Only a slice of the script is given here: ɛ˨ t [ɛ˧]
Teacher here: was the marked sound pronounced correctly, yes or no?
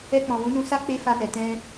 no